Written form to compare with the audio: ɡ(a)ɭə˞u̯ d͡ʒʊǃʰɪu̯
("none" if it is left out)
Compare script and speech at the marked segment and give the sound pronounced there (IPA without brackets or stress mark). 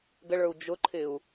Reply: ə